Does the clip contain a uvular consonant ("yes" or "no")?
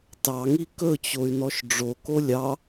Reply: no